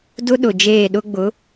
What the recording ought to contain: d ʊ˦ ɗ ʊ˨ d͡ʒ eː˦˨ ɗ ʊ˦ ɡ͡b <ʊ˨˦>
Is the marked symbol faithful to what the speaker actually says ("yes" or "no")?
yes